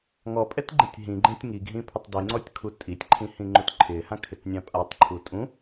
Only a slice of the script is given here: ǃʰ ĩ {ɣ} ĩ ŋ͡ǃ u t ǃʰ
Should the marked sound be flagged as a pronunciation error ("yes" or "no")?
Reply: yes